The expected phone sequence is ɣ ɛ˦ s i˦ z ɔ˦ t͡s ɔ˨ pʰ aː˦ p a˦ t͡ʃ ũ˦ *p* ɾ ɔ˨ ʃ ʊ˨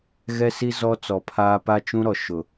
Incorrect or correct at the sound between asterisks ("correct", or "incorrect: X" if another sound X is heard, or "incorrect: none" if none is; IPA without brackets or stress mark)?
incorrect: none